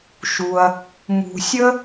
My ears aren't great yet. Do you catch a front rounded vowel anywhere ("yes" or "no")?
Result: no